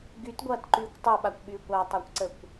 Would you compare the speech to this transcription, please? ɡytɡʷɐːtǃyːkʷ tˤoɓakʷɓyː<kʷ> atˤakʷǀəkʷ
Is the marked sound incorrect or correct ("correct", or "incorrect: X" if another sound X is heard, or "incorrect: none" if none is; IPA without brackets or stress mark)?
correct